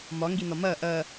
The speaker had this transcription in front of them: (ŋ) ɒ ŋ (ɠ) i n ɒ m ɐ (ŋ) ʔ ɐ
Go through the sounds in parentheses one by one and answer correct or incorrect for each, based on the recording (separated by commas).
incorrect, incorrect, incorrect